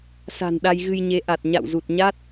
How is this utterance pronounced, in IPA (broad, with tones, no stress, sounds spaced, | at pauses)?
s a̤˨˩ n ɗ a˧ j ɣ ɨ˧ j ɲ e˨˦ ʔ a˨˩ t̚ ɲ a̰˧˨ w z u˨˩ t̚ ɲ a˦˥ t̚